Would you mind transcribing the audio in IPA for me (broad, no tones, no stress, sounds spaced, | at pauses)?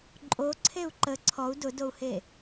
ǃʼ o ǀʰ e u̯ ǃ ə ǀʰ ɔ u̯ d ʊ d o u̯ h e